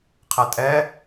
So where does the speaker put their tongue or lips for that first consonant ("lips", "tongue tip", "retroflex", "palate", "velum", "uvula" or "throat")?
uvula